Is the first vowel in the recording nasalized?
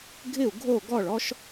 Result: no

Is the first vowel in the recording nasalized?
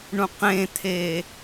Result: yes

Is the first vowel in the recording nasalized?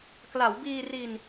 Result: no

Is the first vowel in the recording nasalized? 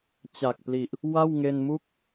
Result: no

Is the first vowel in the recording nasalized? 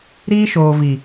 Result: no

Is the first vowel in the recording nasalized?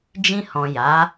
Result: yes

